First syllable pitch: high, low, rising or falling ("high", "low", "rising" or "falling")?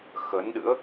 rising